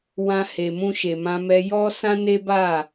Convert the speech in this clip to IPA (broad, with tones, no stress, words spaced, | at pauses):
wã˧he˨mũ˧ ʃe˨mã˧mɛ˧ jɔ˦ sã˦ne˦ba˦˨